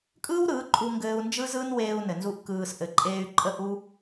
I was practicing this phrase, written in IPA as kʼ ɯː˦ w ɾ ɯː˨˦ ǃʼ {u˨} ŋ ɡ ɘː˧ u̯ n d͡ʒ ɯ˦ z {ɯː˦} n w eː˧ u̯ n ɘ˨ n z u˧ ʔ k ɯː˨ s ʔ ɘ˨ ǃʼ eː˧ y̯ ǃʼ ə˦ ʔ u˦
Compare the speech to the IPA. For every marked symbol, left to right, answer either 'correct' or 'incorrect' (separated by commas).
incorrect, correct